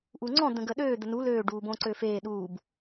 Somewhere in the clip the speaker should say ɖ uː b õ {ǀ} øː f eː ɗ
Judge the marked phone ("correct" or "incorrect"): correct